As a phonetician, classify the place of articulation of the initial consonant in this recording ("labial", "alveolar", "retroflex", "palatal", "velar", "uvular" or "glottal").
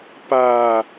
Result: labial